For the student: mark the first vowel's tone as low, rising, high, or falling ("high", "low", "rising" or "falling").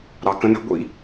low